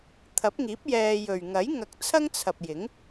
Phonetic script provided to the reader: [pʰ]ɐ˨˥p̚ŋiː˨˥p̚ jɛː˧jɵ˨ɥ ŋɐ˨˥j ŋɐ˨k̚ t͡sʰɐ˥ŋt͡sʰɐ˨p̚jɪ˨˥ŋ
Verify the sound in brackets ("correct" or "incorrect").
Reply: incorrect